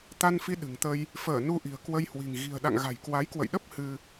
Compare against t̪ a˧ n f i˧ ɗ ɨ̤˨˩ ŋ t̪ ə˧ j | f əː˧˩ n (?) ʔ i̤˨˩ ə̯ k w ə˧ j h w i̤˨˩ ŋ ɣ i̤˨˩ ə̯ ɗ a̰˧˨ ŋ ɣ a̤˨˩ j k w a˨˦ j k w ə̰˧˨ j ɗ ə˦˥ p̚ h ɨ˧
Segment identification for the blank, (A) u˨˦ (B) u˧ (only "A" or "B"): B